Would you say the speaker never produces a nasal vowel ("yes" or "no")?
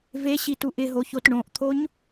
no